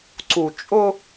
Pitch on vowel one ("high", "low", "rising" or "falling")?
low